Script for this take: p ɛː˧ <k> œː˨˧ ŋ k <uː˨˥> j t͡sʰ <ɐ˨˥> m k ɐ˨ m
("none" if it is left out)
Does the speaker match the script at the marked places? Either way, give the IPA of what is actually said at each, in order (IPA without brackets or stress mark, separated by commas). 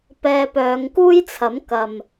p, uː˥, ɐ˨˥